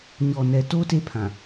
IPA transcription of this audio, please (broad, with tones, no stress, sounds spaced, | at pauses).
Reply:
ɲ ɔ˨ n ɛ˨ t o˦ t e˦ pʰ ã˨